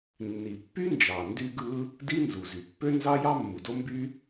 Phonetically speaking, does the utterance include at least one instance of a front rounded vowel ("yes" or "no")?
yes